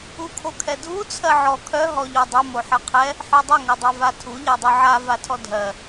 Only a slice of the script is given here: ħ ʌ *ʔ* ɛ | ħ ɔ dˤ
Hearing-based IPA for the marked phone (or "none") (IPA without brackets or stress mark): qʰ